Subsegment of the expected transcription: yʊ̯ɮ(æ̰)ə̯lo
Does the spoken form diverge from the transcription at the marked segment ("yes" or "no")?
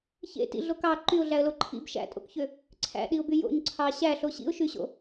yes